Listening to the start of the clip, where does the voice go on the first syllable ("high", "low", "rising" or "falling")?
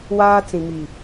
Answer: high